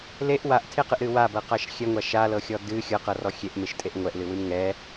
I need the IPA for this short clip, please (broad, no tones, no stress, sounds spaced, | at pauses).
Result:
l e ʔ w a ʔ tʰ e q ɨ ʔ ɾ ɨ w a b ɤ q a ʃ xʲ ɛ ŋʷ a ʃ a l ɤ xʲ ɔ d ɨ xʲ ɤ q ɤ r ɔ xʲ e ʔ m e ʃ tʼ e ʔ ŋʷ ɛ ʔ l ɨ w ɨ m ŋ ɛ